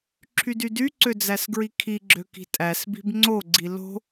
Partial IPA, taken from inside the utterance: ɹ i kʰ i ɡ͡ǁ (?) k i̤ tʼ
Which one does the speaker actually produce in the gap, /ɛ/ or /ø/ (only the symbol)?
ø